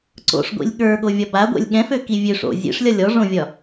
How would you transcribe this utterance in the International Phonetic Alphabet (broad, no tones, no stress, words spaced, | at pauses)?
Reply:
ǀo̰ʂɡʷḭlʲ ɠə˞ɠovʲɒ baɡʷɛ̰lʲ ɠɛ̃føki vʲøʂ o̰ zʲḛʂlʲɒlʲ ɔʐõvʲɒ